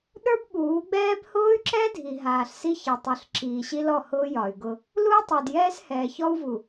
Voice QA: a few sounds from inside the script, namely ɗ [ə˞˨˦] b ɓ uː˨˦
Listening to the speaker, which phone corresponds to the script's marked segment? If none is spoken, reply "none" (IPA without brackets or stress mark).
ə˞˦